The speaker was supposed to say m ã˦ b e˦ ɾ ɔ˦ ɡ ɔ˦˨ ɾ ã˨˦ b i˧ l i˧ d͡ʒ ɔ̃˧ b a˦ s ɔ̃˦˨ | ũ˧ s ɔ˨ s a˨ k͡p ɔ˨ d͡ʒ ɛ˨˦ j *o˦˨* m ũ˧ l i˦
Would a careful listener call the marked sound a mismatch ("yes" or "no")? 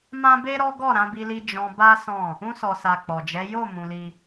no